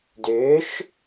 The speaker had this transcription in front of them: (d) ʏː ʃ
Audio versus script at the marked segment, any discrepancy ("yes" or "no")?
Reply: no